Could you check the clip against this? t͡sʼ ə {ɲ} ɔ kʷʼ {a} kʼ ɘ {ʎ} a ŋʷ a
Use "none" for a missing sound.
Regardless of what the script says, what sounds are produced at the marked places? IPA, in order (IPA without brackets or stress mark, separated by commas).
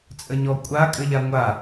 ɲ, a, ʎ